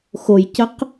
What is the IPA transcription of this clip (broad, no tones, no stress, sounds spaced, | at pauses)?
x o j c ə q